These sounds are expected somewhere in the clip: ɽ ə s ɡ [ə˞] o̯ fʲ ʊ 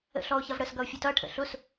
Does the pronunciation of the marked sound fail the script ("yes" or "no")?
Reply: yes